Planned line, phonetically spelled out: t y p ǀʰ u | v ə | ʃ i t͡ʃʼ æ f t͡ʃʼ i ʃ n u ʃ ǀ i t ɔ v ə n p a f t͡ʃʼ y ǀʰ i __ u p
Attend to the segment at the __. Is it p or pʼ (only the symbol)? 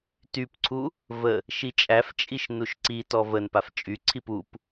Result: p